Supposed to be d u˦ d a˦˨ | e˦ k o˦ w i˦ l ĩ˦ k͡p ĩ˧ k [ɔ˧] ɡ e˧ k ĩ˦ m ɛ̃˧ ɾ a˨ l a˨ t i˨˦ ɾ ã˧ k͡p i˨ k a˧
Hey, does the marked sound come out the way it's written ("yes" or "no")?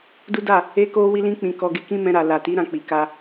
yes